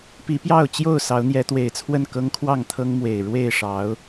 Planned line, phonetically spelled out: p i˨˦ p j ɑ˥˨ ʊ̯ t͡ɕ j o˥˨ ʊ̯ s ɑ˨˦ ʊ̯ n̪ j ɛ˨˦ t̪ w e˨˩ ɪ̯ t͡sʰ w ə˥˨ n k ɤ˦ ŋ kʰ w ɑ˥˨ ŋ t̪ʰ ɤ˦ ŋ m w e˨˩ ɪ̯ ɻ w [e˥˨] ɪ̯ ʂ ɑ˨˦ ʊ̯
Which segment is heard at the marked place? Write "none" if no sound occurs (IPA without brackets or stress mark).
e˥˨